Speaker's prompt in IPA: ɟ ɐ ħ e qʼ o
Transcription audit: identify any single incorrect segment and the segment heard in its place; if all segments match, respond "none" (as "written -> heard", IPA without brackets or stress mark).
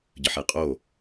ɐ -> ə